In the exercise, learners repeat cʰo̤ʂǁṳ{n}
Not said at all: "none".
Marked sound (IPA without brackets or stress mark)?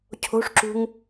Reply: ŋ